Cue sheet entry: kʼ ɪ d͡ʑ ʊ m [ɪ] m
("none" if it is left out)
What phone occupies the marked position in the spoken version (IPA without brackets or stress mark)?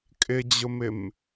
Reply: ɪ